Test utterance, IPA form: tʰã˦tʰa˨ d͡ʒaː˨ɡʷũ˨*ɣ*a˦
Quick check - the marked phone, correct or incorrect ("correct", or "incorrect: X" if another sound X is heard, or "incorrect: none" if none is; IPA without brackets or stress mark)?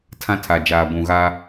correct